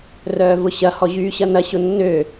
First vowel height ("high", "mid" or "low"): mid